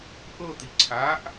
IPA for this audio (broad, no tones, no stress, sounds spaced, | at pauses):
ʔ ɤ t̪ i ǀʰ a ʔ